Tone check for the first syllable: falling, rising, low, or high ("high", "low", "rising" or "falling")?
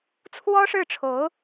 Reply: high